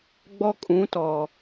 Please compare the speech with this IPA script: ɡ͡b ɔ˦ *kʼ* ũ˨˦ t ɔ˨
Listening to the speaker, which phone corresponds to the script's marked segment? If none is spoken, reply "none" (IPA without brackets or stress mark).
kʼ